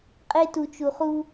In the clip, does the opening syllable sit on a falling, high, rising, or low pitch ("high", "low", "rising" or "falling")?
high